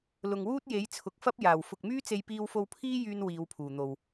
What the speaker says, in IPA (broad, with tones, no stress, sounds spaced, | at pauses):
l ʊ˨ ŋ w uː˥ t̚ j e˨˥ j t͡sʰ ʊ˨ k̚ f ɐ˥ p̚ j aː˨˩ w f ʊ˨ k̚ m yː˥ t͡s e˧ j p iː˧ w f o˧ w pʰ iː˥ j yː˧ n w iː˨˧ w pʰ uː˨˩ n̪ o˨ w